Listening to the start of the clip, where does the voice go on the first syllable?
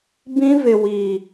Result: high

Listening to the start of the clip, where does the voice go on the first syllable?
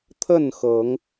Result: falling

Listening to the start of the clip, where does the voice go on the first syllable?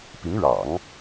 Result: rising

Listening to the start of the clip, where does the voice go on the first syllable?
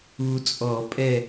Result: low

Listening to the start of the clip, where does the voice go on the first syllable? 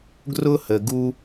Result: high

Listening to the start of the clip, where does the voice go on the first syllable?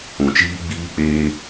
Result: low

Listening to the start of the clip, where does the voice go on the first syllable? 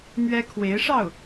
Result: high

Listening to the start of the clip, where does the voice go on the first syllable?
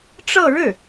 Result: falling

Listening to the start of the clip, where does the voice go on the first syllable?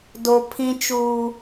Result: high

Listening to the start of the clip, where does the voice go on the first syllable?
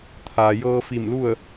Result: low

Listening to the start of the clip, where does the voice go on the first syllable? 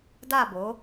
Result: falling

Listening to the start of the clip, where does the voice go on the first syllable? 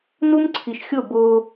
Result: high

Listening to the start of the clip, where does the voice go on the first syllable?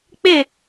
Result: falling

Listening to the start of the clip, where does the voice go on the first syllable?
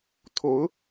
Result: rising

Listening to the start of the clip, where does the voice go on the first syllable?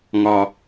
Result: low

